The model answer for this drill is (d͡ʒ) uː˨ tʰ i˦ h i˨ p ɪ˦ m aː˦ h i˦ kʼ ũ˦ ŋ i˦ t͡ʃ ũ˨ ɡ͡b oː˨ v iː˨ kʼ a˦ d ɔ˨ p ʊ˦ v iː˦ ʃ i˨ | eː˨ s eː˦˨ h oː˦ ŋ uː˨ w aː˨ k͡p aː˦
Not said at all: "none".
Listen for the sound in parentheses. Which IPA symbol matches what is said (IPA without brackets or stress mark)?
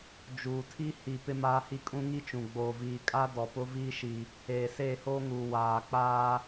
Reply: d͡ʒ